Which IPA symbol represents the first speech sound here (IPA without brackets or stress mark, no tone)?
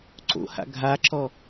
ǀ